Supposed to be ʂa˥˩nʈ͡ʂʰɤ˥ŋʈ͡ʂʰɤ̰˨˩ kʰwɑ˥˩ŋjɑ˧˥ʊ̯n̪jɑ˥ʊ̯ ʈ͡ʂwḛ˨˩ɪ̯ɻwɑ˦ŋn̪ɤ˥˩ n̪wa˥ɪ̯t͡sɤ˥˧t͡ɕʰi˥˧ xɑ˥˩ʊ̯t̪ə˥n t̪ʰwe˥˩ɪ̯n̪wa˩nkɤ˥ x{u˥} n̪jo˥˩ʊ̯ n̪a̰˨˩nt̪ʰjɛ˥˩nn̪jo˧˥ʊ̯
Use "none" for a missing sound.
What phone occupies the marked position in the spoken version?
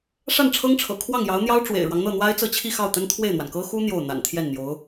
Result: u˥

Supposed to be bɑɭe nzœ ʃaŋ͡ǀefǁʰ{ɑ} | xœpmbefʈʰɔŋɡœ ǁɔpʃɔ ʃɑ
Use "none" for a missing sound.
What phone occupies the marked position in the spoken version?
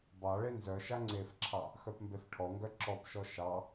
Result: ɑ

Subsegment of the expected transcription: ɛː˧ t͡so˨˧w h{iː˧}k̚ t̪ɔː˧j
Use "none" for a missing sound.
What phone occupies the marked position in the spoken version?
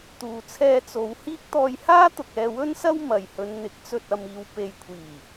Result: iː˥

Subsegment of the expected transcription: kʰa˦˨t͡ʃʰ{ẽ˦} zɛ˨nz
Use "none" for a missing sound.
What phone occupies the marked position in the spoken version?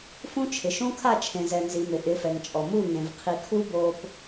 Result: ẽ˨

